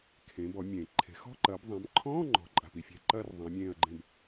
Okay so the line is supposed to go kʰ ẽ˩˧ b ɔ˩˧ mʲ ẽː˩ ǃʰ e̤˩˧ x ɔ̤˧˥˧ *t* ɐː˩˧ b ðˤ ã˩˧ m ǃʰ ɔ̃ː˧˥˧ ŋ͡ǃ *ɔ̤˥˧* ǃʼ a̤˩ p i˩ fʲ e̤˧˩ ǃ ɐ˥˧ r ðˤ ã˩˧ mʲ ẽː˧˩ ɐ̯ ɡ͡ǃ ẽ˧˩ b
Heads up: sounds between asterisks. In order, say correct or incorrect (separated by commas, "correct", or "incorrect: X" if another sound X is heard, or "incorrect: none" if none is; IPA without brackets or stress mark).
incorrect: ǃ, incorrect: ɔ̤˩˧